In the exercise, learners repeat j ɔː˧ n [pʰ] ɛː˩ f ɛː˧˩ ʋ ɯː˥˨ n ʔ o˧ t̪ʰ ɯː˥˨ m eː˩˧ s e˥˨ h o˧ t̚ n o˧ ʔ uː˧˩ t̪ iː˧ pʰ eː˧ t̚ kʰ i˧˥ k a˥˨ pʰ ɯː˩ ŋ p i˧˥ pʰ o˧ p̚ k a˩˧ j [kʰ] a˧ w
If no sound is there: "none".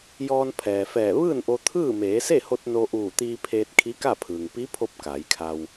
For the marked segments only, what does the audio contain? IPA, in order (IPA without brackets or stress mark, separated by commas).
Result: pʰ, kʰ